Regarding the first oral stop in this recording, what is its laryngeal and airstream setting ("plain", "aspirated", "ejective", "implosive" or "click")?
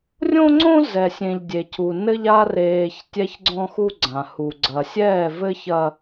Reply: click